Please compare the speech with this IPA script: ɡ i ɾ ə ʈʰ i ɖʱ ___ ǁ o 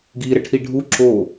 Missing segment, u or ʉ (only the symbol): u